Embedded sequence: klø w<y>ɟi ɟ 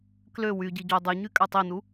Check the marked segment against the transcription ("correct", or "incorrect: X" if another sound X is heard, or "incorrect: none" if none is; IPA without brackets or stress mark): correct